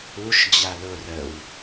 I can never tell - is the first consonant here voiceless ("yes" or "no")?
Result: yes